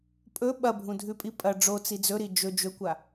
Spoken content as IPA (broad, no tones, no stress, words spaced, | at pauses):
pʼɵ ɓɐbʱũdʱʉpʼi pʼɐ ɖ͡ʐot͡si d͡zɵɾi d͡ʒɵ d͡ʒɵkʷa